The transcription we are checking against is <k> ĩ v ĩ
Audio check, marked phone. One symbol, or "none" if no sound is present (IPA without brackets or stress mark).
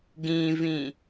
ɡ